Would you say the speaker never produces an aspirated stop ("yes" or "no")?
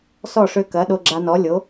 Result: yes